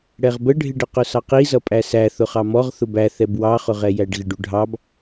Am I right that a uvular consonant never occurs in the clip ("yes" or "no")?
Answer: no